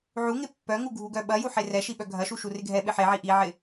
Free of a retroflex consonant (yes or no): yes